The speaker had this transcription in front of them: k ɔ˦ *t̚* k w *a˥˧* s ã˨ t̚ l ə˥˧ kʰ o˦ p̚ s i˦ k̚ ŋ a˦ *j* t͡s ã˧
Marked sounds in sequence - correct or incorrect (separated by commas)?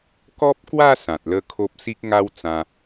incorrect, correct, incorrect